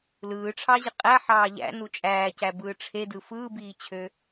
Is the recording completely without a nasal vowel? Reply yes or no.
yes